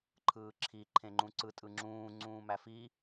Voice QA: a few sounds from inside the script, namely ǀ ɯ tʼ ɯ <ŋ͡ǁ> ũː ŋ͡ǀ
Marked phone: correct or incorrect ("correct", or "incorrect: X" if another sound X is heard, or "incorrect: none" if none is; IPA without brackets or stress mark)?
correct